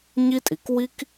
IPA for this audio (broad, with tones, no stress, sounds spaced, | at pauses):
ɲ i˥ tʼ i˩ k w i˥ k